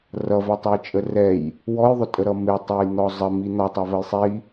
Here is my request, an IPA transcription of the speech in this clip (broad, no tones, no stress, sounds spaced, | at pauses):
r ʌ v ɛ tˤ ʌ j t͡ʃʼ ə r ɛ j | w ɔ j ðˤ ʊ tʼ ə ɾ ʌ m ɪ tˤ ɛ j n̪ ɔ zˤ ə m i n̪ ɒ tˤ ʌ v ə j sˤ i